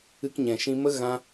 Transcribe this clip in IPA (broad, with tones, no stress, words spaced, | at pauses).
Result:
ɨ˧kɲɛ̃˨ʃĩ˧mə˦ ɣã˦